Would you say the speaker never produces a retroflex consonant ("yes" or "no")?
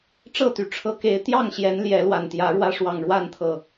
no